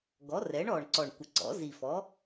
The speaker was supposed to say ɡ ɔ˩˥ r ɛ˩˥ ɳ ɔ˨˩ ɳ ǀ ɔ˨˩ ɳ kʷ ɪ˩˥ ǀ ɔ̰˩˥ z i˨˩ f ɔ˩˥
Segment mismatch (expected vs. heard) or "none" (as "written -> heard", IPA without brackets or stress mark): none